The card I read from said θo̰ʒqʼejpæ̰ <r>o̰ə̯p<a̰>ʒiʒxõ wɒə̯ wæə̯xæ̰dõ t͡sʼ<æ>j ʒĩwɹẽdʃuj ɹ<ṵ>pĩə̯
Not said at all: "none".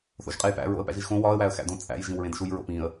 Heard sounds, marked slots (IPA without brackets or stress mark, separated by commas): ɹ, æ̰, æ̰, o̰